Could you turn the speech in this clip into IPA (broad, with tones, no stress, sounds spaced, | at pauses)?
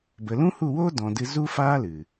b ə˨ l ũ˦ h u˦˨ w oː˦ d ɔ̃˨ d ɨ˧ z u˦ f aː˦ l ɨ˨